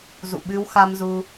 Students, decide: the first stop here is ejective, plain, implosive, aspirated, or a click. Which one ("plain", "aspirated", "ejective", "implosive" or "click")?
implosive